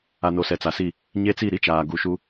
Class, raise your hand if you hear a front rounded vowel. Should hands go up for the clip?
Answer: no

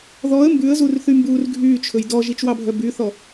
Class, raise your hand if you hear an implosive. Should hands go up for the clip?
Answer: no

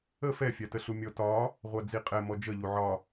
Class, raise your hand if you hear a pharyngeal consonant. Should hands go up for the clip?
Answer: yes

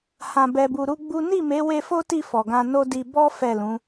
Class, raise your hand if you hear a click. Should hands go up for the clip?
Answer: no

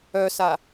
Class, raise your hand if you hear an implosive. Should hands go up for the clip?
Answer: no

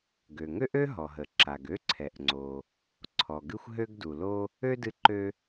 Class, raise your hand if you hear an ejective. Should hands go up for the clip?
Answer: no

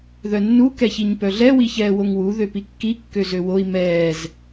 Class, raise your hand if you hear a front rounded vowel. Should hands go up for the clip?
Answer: yes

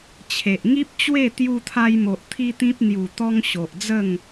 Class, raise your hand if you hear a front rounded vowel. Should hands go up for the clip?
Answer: no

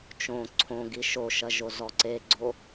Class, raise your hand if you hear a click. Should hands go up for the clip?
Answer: yes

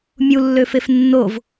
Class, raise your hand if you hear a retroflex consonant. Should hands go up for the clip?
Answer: no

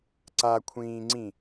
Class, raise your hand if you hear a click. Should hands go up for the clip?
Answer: yes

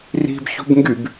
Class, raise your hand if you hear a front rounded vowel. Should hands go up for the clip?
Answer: yes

